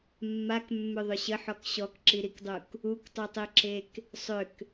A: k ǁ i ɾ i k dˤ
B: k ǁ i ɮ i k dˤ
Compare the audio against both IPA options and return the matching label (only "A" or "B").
A